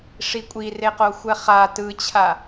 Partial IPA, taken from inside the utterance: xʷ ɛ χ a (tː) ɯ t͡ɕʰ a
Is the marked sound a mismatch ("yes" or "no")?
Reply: yes